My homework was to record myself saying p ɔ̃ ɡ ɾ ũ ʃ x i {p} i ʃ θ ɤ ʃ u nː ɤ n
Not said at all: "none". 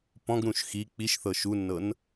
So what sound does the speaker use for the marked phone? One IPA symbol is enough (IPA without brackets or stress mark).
k͡p